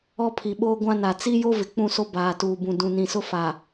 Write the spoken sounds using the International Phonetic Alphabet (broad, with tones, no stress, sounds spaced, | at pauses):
ɔ˦ pʰ i˨ ɓ oː˦ ɡʷ ã˦ n a˨ t͡s i˦ j o˦ v ɪ˨ k͡p ũ˦˨ s o˦ b aː˨ t uː˨ b ũ˨ d ũ˨ n ĩ˨ s ʊ˦ f a˨